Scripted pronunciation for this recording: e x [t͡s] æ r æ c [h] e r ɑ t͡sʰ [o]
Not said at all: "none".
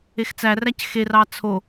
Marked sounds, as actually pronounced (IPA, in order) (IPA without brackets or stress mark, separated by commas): t͡s, x, o